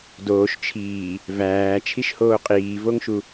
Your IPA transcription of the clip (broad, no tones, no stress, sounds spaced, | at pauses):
d oː ʃ t͡ʃʰ iː | v æː t͡ʃʰ i ʃ h oː qʼ iː v o ŋ ʃ u